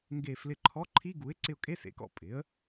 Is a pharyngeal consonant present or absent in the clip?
absent